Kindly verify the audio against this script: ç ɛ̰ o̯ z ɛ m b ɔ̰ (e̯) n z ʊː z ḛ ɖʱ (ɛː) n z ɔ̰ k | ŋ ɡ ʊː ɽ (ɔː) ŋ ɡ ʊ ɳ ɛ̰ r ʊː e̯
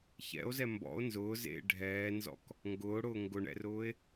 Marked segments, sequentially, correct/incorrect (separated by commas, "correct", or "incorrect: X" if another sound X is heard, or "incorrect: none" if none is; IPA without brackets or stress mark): incorrect: o̯, correct, incorrect: ʊː